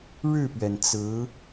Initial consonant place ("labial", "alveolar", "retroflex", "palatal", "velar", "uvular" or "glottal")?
retroflex